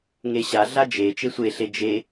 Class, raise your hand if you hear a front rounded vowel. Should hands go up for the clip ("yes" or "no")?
no